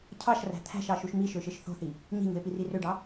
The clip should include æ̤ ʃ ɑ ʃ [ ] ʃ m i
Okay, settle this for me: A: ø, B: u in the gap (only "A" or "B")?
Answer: B